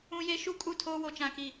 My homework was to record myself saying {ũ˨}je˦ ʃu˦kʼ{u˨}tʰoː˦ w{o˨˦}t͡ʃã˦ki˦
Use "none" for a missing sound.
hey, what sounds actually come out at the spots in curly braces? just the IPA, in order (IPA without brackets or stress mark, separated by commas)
ũ˦, u˦˨, o˦